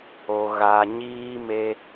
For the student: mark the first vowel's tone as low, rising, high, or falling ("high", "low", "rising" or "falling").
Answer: low